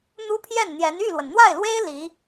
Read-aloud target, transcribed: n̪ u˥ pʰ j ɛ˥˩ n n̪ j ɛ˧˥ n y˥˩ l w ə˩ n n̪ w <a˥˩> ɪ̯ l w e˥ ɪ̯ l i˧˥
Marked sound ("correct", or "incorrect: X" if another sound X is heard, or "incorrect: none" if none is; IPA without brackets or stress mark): correct